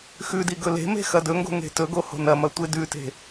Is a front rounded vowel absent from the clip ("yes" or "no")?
yes